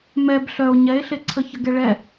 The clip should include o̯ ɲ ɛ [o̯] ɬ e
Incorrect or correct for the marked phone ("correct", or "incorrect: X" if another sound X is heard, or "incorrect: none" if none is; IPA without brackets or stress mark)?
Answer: incorrect: e̯